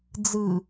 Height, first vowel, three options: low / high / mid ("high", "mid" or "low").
high